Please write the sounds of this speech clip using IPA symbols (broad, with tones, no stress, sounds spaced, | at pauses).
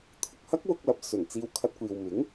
t̪ʰ ʊ˨ k̚ h ɐ˥ k̚ w ʊ˧ k̚ l ɐ˨ p̚ s ɵ˨˩ n t͡s iː˧ w kʰ ɐ˧ t̚ kʷ iː˨ w m ɪ˨˥ ŋ